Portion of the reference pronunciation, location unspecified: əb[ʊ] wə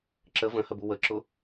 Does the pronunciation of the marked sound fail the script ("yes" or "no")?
yes